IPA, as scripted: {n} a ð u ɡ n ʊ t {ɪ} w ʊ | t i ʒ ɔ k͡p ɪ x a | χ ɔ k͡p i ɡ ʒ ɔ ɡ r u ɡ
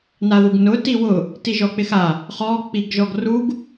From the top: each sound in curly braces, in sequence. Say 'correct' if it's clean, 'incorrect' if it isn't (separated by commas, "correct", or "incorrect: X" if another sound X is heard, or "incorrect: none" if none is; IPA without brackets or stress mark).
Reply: correct, incorrect: i